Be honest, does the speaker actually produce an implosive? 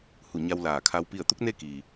no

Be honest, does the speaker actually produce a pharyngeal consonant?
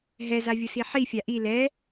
yes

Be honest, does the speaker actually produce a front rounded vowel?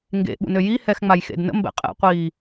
yes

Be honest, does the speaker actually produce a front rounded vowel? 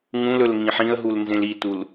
no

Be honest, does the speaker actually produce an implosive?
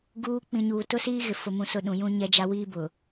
yes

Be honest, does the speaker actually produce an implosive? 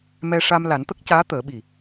yes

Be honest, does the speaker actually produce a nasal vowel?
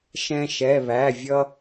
yes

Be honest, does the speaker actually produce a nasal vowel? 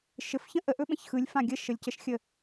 yes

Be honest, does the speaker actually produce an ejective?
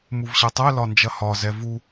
no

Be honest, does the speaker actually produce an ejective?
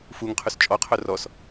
yes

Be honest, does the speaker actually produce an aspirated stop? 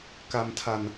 yes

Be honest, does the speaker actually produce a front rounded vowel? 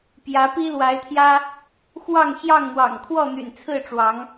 yes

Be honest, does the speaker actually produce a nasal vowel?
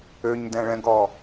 yes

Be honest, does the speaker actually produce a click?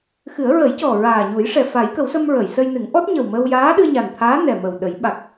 no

